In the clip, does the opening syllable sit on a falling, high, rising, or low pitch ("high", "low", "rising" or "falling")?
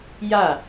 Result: falling